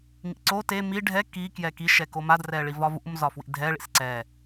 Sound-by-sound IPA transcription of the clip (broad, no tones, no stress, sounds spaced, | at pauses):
ŋ ḭ ǀ o t e m i ɖʱ ɛ k i k j ɛ k i ʃ ɛ k o m a d r ɛ ɭ i v ɒ v ṵ m z ɒ f w ḭ dʱ ɛ ɭ ḭ s ǀ ɛ